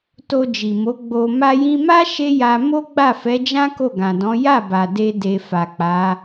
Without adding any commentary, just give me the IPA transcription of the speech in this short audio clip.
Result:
to˧ d͡ʒi˨mo˨˦ ɡ͡bo˧ ma˧jĩ˧ma˦ ʃe˦ja˧ mo˦ɡ͡ba˦˨fɛ˨˦d͡ʒã˦ ko˦˨ɡã˨dɔ̃˨˦ ja˦˨ba˨ de˧de˨ fa˨ k͡pa˨˦

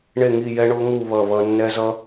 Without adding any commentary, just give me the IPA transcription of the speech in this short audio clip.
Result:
ɳe˥˨ŋi˥˨jɛ˦˥ ɳo˦˥ŋu˥˨ βʌ˥˨βʌ˦˥ nːɛ˦˥zʌ˦˥

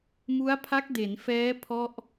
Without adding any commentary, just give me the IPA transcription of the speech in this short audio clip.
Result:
mu˦˥a̯pʰa˦˥k̚de˩˦n fɛː˦˥ pʰɔ˥˩ʔ

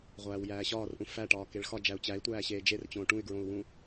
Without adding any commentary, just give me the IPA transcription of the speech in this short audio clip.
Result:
ʁʷæːwjæːɕɒːrʔũ fæʈɒː keɭxɒ d͡ʒæu̯t͡ɕæi̯tʷæː ɕeːd͡ʒert͡ɕõː ʈũy̯ɡɹõu̯wũ

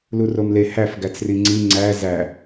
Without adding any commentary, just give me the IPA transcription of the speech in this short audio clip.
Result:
luromle hæf ɡæt͡sriŋ͡ǀi ŋ͡ǀæ zæ

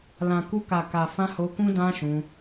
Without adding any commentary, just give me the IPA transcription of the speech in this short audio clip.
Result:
lã˨ ku˧ka˨ka˨fã˧ ho˧kũ˦ dã˦ʃũ˧

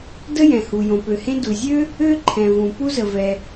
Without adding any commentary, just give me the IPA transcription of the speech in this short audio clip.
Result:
də˥jɛ̃˩hu˩ jõ˩pø˩hẽ˥ du˩zʲø˥ | ø˥ǃʰɛ̃˩ vũ˩ pu˥zə˩vɛ˩

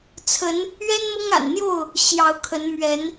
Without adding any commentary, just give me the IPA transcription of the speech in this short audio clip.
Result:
t͡sʰə˨˦n | ɥɛ˦nmɤ˦ŋa̰˨˩nn̪jo˥˨ʊ̯ | ɕjɑ˨˦ʊ̯kʰə˨˦n mɥɛ˨˦n

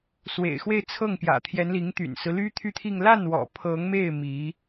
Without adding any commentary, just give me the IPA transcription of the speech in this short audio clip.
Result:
swḛ˨˩ɪ̯xwe˥˧ɪ̯t͡sʰɤ˥˩ŋpjä̰˨˩ t̪ʰjɛ˧˥nli˧˥ŋ t̪y̰˨˩nsɹ̩˦ly˥ t̪ʰy˥˧t̪ʰi˥˧ŋ la˥˩nwɔ̰˨˩ pʰɤ˧˥ŋme˥˩ɪ̯ mi˧˥

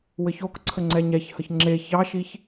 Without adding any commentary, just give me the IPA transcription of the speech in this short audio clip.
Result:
wɘçokǀʰə ŋ͡ǀɛɲɛçhəç ŋ͡ǁe çɑʃiç

